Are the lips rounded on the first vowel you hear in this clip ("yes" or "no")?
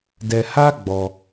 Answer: no